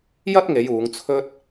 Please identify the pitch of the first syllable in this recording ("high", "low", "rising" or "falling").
high